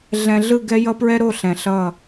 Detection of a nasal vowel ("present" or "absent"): present